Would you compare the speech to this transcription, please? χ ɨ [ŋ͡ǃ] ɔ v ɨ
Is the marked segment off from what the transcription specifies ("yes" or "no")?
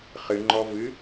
no